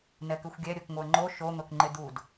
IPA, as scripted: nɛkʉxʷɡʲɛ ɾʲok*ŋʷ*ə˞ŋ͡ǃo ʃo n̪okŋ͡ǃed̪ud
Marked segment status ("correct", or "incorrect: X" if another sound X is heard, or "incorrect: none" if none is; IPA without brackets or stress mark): correct